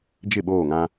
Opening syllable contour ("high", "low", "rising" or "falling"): falling